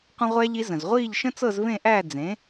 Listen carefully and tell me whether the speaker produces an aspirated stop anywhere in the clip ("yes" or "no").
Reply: no